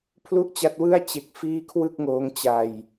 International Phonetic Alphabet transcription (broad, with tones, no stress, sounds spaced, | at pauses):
pʰ l u˥˩ ʔ t͡ɕ a˦˥ t̚ w ɯ˥˩ a̯ t͡ɕ e˦˥ k̚ f iː˥˩ kʰ w ɯ˥˩ k̚ ŋ oː˦˥ ŋ t͡ɕ a˧ j